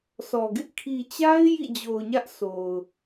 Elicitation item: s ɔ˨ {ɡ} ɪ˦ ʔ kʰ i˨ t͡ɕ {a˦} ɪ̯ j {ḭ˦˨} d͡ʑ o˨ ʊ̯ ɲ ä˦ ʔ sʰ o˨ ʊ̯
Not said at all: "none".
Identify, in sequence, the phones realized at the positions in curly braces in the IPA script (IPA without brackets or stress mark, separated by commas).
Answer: ɡ, a˦, ḭ˦˨